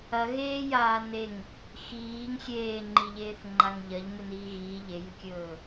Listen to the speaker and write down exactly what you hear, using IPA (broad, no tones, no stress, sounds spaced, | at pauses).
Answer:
ɐ ɣ eː j aː n e ŋ | x iː ŋ xʲ eː ŋ͡ǃ i ʎ eː θ ŋ͡ǃ a ŋ ʎ ɐ ʎ m ɨ n iː ɣ iː ʎ e j ɨ kʲ ɵː